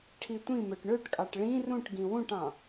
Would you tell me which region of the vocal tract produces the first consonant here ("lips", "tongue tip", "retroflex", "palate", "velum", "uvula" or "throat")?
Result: retroflex